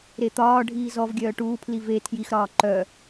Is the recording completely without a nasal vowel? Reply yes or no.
yes